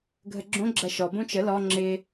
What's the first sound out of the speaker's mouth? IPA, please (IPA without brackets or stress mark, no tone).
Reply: ɡʱ